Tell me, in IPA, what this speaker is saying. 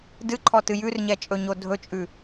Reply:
d ɨ ǃʰ ɔ t ɨ j ʉ r ɲ ɛ t͡ʃʼ ɵ ɲ o dʱ ɵ t͡ʃʼ ʉ

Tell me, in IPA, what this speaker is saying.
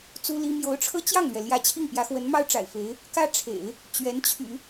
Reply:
t͡s u˥ l i˥ m j o˧˥ ʊ̯ ʈ͡ʂʰ ɤ˥ t͡ɕ j ɑ˥˩ ŋ l ɥ ɛ˩ l j ä˥˧ t͡ɕʰ i˥˩ ŋ p j ä˧˥ x w ə˧˥ n m ɑ˥ ʊ̯ ʈ͡ʂ a̰˨˩ ɪ̯ f e˧˥ ɪ̯ | k ä˥ ʈ͡ʂʰ ḛ˨˩˦ ɪ̯ | t͡ɕ ɥ ɛ˧˥ n t͡ɕʰ y̰˨˩˦

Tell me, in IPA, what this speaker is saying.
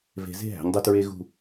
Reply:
v e̤˧ z e̤˥˧ ɦ æ̤˩˧ ɲ dˤ u˧ t ɹ e˥ ɣ ṳ˥˧

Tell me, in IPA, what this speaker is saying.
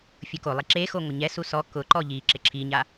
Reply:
fʲ ʊ k o lˠ i ǁ e x o ŋʷ ɪ ɲ ɛ s u s ɔ k ʊ ǃ ɔ ʎ i ǁ ɪ ǁʰ i ɲ a

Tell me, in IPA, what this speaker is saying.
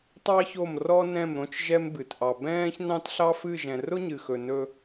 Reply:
tˤ ɑ˦ ç o˦˨ m r ɔ˦ n ɛ̃˦˨ m ɾ õ˦ t͡ʃ ʒ ɛ˦ m b ɨ˨ t ʔ ɑ˨ b ɛ̃ː˦ ç n ɑ̃˦ t ɬ ɑ˦ f ɨ˦˨ ʒ ɛ̃˨ r ʊ˦ ɲ ɨ˨ x ɵ˨ n ɵ˦

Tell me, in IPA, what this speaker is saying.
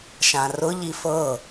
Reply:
ʃ ã r ʊ ʎ i f ɤ

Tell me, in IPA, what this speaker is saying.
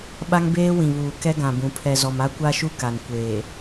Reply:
ɓ a˦ ŋ b eː˦ w ĩ˨ β uː˨ k ɛ˦ ɡ ã˨ b ũ˨ pʰ ɛ˨ z ɔ˨ m a˦ kʷ a˦ ʃ u˦ k a˨ n kʷ eː˨

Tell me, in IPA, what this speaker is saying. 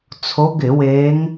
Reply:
t͡sʰ o˨˦ ɡ ɪ˧˩˧ w e˨˦ ŋ

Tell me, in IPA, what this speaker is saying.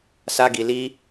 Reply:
s a˧ ɡ i˨ l i˧

